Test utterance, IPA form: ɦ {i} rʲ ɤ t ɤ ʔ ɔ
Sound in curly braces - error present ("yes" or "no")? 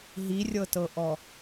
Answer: no